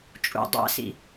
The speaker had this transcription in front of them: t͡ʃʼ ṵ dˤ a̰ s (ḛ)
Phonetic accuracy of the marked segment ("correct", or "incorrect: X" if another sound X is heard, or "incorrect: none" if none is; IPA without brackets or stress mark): incorrect: ḭ